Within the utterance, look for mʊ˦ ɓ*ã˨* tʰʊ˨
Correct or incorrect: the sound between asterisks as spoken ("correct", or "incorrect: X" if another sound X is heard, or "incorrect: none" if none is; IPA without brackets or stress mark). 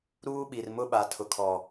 incorrect: a˨